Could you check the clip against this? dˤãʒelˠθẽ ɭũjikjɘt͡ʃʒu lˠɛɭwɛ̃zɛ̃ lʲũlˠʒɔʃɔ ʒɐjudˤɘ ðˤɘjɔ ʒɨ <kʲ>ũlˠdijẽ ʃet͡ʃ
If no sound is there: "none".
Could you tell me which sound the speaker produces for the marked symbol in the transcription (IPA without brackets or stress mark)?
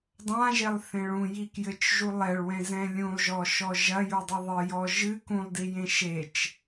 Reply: k